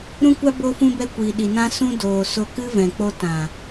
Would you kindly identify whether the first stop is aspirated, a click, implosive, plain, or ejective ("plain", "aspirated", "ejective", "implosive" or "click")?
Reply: plain